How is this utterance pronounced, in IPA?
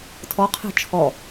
tʰ ɔ qʰ e̤ t͡ʃʰ ɔ

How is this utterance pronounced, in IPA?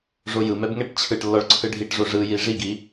ʐ o j ɯ m ɛ b ŋ ɛ ʈ t͡ɕʰ ɯ ʈ lː ɔ ɭ ǀʰ ɯ ɖʱ i ʈ ʐ o ʐ ɯ j i ʐ i ɡ i

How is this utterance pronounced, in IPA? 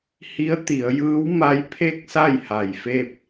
h i˧˥ ə̯ t̪ i˩˧ ə̯ j ɯː˧˥ w m a˧˥ j pʰ e˥˨ k̚ s a˥˨ j h a˧˩ j f e˥˨ p̚

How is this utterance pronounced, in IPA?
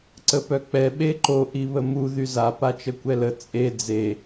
ǀ ə p œ k͡p ɛ ɓ e ǃ o ʔ i β ə m u ð y z a p a t͡ʃ ə kʷ ɛ l ə t͡sʼ e d͡z e

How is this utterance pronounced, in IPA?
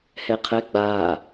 h ɛ qʰ ɛ ɡ͡b a

